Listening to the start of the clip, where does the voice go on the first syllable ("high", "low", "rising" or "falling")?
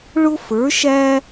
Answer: high